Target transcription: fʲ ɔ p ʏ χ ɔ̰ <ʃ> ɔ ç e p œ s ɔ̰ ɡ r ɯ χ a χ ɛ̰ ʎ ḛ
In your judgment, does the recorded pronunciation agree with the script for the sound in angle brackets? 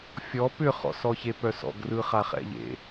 no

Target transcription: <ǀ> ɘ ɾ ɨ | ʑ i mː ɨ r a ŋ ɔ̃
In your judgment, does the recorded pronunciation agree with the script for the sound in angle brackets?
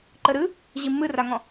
no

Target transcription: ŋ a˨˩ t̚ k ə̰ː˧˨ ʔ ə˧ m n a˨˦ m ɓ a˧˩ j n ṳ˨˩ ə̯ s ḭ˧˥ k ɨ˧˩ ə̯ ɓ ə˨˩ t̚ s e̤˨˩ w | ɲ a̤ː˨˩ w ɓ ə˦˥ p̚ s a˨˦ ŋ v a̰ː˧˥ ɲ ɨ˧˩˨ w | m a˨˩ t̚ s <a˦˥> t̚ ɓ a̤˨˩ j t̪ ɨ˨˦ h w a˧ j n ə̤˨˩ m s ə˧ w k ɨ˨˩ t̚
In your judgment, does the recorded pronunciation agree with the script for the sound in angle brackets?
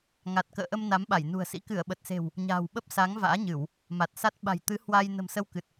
yes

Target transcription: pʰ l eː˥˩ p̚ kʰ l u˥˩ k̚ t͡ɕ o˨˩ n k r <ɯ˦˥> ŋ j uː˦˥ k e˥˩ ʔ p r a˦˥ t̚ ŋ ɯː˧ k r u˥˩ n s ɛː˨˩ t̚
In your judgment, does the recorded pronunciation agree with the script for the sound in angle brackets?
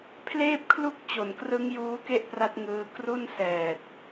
yes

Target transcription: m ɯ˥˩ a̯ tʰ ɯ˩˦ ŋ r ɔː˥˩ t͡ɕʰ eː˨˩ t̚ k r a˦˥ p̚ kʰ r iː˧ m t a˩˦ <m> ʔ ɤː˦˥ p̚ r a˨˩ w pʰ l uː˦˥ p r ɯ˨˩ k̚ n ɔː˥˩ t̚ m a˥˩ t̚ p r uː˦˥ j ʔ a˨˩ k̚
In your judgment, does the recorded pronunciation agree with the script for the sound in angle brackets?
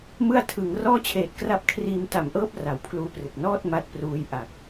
yes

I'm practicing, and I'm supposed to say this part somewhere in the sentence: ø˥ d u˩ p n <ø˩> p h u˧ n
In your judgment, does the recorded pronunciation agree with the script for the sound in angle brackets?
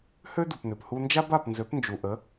yes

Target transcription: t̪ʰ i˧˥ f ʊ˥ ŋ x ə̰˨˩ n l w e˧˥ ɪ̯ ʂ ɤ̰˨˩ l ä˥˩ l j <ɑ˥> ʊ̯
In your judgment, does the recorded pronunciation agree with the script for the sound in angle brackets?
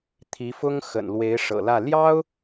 yes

